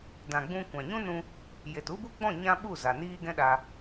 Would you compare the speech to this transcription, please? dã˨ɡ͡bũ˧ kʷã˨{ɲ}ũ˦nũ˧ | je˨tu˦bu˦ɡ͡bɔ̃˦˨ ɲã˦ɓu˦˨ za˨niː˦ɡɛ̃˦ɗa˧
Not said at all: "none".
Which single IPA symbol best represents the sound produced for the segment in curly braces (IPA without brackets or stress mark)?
ɲ